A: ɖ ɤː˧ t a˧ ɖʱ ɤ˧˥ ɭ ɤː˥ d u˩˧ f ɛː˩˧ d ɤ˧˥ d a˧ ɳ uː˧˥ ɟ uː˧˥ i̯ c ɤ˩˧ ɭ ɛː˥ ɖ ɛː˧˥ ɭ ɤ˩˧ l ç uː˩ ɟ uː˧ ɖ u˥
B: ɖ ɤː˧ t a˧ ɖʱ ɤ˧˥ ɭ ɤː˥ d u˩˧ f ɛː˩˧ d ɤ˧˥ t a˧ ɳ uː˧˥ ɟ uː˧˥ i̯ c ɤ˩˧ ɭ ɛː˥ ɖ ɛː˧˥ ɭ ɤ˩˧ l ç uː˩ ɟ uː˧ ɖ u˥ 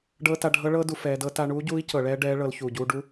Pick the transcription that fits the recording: B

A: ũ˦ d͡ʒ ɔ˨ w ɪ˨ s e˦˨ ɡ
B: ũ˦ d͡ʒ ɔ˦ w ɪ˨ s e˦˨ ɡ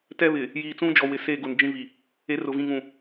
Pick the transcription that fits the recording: A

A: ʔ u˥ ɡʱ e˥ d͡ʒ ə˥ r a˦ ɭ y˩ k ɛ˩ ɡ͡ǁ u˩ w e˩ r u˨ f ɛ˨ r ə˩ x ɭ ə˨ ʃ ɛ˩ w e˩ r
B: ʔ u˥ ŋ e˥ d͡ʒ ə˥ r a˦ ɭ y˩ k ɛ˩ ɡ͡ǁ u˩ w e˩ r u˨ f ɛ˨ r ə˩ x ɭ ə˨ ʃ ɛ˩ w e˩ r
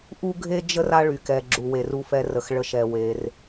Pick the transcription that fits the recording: A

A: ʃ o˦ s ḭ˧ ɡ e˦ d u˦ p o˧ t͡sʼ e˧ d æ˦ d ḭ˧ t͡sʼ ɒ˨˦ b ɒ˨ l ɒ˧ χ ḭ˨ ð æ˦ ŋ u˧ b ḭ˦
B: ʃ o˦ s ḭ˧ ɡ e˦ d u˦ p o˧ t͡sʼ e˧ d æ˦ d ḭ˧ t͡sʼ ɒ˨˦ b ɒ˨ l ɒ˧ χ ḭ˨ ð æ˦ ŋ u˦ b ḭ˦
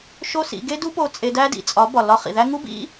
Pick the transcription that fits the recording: B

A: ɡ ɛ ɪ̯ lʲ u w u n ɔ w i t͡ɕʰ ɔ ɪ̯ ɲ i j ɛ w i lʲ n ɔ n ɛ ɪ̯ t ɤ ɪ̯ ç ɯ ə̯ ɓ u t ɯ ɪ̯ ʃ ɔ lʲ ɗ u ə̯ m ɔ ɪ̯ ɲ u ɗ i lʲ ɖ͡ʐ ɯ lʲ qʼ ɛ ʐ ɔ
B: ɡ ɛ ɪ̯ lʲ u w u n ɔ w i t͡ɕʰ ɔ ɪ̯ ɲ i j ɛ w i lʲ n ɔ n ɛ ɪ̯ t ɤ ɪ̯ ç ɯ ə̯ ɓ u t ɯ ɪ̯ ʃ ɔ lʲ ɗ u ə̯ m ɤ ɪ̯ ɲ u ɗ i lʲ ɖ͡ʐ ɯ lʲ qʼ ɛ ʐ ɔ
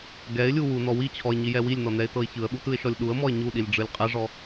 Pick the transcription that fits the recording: A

